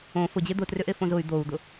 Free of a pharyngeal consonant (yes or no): yes